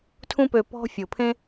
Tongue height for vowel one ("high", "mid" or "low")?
high